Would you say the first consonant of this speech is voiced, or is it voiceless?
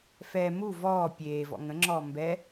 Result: voiceless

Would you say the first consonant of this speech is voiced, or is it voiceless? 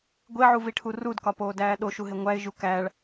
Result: voiced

